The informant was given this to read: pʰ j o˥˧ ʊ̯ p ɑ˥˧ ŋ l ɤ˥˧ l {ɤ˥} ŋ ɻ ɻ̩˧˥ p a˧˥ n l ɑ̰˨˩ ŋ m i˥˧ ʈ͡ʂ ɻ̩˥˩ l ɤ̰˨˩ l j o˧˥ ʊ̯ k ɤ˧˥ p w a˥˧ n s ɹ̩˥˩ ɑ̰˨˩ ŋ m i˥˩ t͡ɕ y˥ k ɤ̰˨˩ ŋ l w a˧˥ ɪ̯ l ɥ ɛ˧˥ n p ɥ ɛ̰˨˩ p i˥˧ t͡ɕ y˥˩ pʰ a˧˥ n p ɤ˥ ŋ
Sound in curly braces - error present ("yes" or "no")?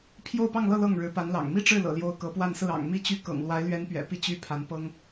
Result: yes